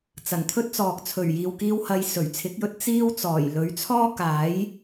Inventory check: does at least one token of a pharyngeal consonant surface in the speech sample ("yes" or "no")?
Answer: no